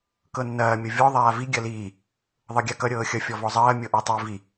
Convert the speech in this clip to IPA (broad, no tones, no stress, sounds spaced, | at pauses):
k ɤ nː ɐː mʲ ʌ vʲ ɔ ðˤ aː v i ɡʲ ɐ l iː | ðˤ ɤ ɡʲ a k ʌ ɾʲ ɤː xʲ ʌ fʲ ɔ v ɔ zˤ ɐː mʲ ɤ ʔ a tˤ i v i